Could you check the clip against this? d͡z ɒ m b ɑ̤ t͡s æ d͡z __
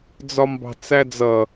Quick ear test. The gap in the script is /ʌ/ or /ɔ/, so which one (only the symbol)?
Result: ʌ